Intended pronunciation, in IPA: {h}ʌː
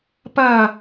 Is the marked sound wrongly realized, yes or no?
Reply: yes